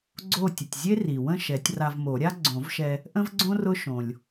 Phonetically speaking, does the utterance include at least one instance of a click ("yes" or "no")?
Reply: yes